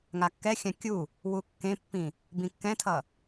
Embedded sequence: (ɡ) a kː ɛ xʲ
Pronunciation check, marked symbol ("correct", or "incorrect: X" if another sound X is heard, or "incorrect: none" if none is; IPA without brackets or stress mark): incorrect: ŋ